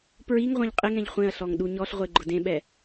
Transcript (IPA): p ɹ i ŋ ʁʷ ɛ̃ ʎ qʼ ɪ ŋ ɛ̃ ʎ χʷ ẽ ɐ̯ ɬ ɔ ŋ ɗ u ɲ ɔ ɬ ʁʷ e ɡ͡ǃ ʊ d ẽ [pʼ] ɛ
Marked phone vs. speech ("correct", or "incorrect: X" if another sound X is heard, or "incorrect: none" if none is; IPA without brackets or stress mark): incorrect: ɓ